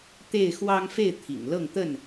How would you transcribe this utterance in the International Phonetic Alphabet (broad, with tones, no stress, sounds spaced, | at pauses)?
t̪ e˥˨ ɪ̯ x w ɑ˦ ŋ f e˥˨ ɪ̯ t̪ʰ ḭ˨˩ ŋ l ɤ˥˨ ŋ t̪ ə˥˨ n